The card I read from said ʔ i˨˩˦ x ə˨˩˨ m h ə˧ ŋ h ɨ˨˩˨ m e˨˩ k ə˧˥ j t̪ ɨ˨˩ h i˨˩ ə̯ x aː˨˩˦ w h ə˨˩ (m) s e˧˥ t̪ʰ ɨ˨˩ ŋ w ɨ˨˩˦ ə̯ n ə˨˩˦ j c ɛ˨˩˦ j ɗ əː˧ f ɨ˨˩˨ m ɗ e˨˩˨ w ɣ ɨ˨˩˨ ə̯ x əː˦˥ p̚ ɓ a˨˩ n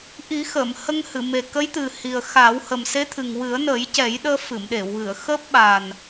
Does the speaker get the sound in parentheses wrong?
no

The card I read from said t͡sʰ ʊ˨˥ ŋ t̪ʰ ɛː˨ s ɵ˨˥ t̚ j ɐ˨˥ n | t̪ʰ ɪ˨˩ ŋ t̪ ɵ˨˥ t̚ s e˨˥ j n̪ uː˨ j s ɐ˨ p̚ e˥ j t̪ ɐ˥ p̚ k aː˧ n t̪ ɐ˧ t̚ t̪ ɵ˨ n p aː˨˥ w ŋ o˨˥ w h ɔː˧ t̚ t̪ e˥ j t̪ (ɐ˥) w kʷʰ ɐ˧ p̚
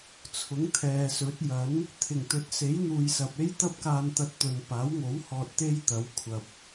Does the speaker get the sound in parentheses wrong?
yes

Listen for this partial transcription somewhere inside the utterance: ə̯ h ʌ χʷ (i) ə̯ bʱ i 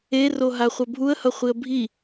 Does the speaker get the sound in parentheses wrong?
no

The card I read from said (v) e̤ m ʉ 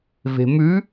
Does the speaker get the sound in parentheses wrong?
no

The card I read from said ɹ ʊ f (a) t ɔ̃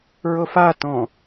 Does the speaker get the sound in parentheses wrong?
no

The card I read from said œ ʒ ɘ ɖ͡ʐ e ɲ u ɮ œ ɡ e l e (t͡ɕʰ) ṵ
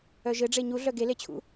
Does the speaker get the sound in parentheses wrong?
no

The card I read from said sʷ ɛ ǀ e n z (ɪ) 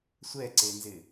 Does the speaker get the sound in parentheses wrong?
no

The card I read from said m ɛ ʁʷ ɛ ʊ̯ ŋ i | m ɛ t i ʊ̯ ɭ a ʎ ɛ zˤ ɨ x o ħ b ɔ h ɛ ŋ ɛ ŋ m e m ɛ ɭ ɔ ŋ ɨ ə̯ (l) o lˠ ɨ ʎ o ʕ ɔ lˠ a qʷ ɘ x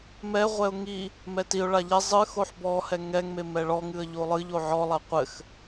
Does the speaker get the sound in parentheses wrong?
yes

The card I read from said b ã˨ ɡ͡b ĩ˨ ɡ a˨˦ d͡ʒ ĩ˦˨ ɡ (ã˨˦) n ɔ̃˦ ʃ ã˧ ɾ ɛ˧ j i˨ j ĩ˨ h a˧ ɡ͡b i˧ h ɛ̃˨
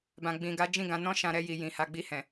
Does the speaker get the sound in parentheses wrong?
no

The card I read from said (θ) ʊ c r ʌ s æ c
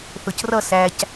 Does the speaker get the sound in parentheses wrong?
no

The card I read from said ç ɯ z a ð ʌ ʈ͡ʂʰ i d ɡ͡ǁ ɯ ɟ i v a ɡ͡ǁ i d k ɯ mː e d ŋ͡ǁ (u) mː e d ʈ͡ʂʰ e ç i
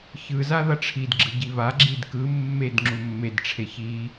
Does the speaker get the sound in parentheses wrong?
no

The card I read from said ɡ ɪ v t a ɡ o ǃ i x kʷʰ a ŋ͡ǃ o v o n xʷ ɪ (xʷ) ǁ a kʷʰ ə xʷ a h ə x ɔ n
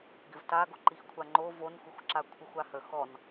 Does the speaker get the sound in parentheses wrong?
no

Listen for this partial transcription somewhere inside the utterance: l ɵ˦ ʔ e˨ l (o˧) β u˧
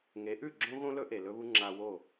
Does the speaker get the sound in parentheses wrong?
yes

